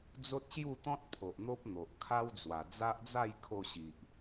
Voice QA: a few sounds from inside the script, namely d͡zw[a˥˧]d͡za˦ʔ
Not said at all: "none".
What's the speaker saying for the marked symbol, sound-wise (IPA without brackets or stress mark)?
a˨˩